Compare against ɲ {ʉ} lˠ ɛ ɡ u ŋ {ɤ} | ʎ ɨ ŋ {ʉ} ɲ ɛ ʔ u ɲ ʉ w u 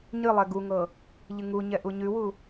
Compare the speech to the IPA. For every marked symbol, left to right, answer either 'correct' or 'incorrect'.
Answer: incorrect: ɨ, correct, incorrect: u

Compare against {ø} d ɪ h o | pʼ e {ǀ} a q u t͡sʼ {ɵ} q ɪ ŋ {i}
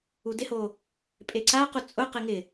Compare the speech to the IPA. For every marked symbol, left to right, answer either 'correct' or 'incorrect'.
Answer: incorrect: u, correct, incorrect: ʊ, incorrect: ɪ

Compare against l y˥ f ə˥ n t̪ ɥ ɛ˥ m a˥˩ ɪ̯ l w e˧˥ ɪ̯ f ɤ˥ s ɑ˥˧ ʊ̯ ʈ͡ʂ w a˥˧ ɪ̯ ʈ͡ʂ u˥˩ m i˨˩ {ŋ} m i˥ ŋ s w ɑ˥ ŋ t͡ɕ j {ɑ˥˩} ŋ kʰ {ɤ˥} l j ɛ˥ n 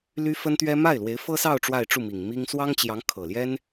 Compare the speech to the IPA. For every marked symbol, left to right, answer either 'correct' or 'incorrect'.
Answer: correct, incorrect: ɑ˧˥, incorrect: ɤ˨˩

